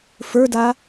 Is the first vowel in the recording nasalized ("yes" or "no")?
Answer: no